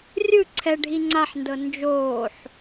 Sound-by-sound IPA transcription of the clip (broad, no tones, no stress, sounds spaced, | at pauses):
rʲ ɯ ǀʰ ɛ ɖʱ i ŋ͡ǀ a ħ n d ɤ n d͡ʒ oː ħ